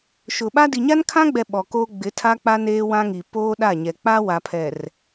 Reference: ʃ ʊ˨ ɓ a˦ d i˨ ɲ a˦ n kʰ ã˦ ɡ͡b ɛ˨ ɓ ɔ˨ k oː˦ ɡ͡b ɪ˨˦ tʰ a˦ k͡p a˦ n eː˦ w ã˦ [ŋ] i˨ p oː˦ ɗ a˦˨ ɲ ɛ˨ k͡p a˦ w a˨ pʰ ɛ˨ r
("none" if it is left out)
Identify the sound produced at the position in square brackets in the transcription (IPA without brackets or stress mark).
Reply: ŋ